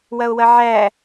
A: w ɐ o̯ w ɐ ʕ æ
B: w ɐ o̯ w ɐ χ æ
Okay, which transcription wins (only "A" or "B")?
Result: A